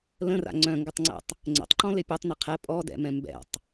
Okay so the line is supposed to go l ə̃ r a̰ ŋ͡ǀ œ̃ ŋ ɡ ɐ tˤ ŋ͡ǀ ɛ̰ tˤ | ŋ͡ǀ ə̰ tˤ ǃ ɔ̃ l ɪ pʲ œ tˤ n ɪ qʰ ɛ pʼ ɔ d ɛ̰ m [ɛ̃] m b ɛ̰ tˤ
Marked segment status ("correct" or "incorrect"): correct